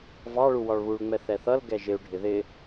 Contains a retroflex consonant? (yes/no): yes